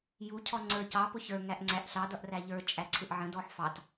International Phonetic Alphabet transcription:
j u cʰ ɔ ŋ͡ǀ ə˞ c ɑ p ʊ ç ə˞ ŋ æ ʔ ŋ͡ǀ æ ʔ ɬ ɑ d ʌ ʔ r æ ʎ ə˞ t͡ʃʼ æ ǀʰ ɪ ʔ ʕ ə̃ d ɔ ħ f ɑ t

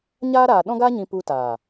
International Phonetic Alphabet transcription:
ɲ aː˦ ɾ aː˨ ɗ ɔ̃˦ ɡ aː˦ ɲ ĩ˧ p u˧ t a˨

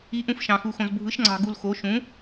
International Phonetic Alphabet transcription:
i˨˥ ʔ ũ˧ f ʃ ɑ̃˧ x u˧ x õ˧ z bʱ ɯ˨˥ ʃ ŋ͡ǀ ɑ̤˧ ɡ u˧ l x o˨˥ ʃ ũ˨˥

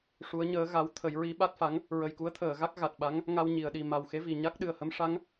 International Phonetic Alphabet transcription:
ʂ u˧˥ ə̯ ɲ əː˧˥ ɣ a˧˥ w t̪ʰ ə˨˩˦ j ɹ i˧˥ ɓ a˦˥ t̚ f a˧˥ ŋ | ɹ ə˨˩ j k u˧˥ ə̯ t̪ʰ əː˨˩˨ ɣ a˦˥ k̚ ɣ a˨˩ t̚ ɓ a˧˥ ŋ | ŋ a˧ w ɲ i˨˩˨ ə̯ ɗ i˨˩ m a˨˩ w x e˧˥ v i˨˩ ɲ a˦˥ k̚ ɗ ɨ˨˩ ə̯ h ə˧˥ m ʂ a˧˥ ŋ

